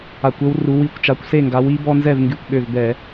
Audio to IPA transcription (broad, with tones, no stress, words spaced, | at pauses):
a˧˩˧kʷø˦w ru˨˦ wi˧˩kʷt͡ʃa˨˦kʷse˥˨ŋɡa˨˦w i˨˦ bɔ˦nzɛ˥˨vŋɡy˧˩kʷɠø˧˩v bɛ˧˩˧